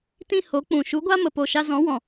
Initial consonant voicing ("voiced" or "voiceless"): voiceless